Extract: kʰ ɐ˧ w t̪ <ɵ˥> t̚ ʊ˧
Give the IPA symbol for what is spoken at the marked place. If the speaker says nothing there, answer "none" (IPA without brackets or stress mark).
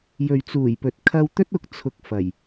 ɵ˥